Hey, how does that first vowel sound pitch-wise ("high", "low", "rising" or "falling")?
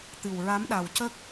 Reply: low